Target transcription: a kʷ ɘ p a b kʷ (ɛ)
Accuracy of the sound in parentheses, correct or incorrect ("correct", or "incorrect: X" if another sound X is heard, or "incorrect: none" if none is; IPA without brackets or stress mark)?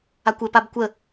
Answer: incorrect: ə